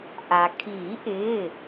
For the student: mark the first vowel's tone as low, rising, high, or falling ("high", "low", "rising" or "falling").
low